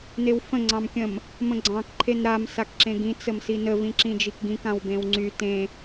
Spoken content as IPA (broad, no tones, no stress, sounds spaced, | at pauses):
n e w f ə̃ ŋ͡ǀ ɑ̃ m kʲ ə̃ m | m ə̃ ɡ͡ǀ ɑ̃ k ǃʰ e n ɾ a m s a k ǁ ẽ ɡ ĩ t͡s ə m s i n ə v ĩ ǁ ĩ d͡ʒ i k ɡ ĩ k ã w b ẽ w ŋ͡ǀ y t ẽ